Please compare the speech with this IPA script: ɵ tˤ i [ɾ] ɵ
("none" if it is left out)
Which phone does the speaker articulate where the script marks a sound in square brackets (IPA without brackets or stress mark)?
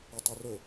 r